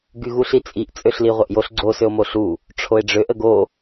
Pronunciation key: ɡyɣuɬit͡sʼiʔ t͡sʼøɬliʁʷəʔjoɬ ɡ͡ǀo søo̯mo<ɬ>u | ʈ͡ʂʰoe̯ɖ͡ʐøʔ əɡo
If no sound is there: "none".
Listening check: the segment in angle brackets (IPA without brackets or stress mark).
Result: ɬ